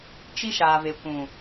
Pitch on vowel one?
high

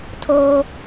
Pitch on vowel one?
high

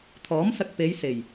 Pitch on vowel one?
rising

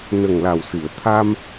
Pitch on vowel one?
low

